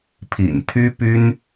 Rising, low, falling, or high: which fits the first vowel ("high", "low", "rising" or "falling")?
low